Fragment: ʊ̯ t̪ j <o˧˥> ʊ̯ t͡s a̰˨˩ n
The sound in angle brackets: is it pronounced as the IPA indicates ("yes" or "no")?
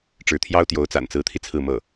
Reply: yes